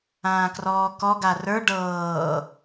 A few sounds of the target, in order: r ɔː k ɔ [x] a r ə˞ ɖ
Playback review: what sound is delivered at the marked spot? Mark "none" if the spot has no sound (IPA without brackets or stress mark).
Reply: ɡ